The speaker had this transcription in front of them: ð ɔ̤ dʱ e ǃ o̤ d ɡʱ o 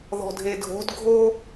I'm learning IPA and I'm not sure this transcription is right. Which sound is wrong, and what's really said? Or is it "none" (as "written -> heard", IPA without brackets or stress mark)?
ǃ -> dʱ